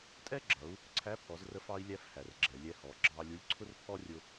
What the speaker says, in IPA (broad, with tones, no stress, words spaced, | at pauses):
tʼɛ˥ɡ͡ǁʌ˩˧u̯ | ǀʰæ˧˥pʰɔ˩˧zrə˧fɑ˧i̯ lʲæ˥fhæ˩r ɡ͡ǁɛ˩ lʲɛ˧hɔ˩˧ɡ͡ǁɑ˧lʲu˧˥lʲ ǀʰʊ˥rpʰɔ˥rʲʊ˧